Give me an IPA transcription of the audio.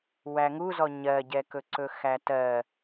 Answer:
wæŋuzɔ ɲɜɟɛkɵǀɵ xætɜ

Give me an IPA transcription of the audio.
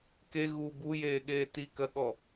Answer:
ke ɣu bujeːɠeː tikɜɠɔ

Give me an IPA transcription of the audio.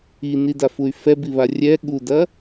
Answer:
inidafuy̯ fɛbiβa rʲɛ ɠudɐ

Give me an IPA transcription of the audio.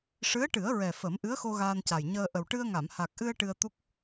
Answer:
ʂɨ˧˥ə̯ʈɨ˨˩˦ə̯ɹɛ˨˩ fə˨˩˦m ʔɨ˧˥ə̯xo˧ ɣaː˧nca˨˩jɲəː˧ ʔə˨˩wʈɨ˧ə̯ŋa˨˩˨m ha˨˩k̚ʔɨ˧ə̯ ʈɨ˧ə̯t̪u˦˥k̚

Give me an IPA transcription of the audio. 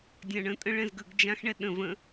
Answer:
dʲãɳə̃tʼə̃ ɭɛ̃zɡəɡd͡ʒãxɳɛ ɗə̃ və̃

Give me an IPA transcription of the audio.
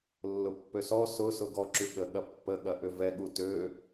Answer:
lːʊpːøsɔ sʊsʊ ɡɔ ǁyɠəɠɐ pːəɠɐ ʔʏvɛɠu tø

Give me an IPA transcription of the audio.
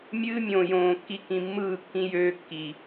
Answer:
mʲɨː˦mʲõː˨jõː˨kːi˦ kĩ˨mːɯː˦˨kːĩ˦ jøː˦kːi˨

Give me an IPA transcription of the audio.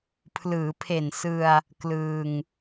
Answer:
pʰlɯː˩˦pʰe˨˩nsɯ˧a̯ | klɯː˧ŋ

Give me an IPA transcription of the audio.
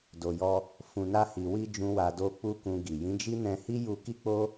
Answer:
do˨jɔ˧ | fũ˨na˧hi˨wi˧ d͡ʒũ˦wa˧do˦ k͡pu˦kũ˧ɡi˨ jĩ˨˦d͡ʒi˦ nɛ̃˧hi˦ ju˧ki˦k͡po˦

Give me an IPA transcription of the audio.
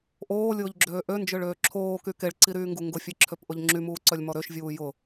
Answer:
ʔoːlʲʊːʎɡ͡ǁøː ʔønd͡ʒøɭøː ǁʰoːky keɭǀiɾyːŋɡu ŋɡʊfʲeǁʰøpʔʊʎ ŋ͡ǁymuːǀœlʲmɔ ɾøʃvʲuː jʊ

